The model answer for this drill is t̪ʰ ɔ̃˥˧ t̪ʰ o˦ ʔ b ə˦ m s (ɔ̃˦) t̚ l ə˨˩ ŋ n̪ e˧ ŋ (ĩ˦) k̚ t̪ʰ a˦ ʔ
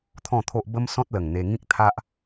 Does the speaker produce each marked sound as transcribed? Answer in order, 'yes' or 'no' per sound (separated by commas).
yes, yes